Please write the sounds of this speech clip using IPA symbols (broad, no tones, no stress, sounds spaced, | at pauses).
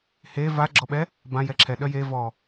h e v a ɡ͡ǁ ɔ ɓ ɛ | b ã j ɛ ǁʰ ɛ ɗ œ j e v ɔ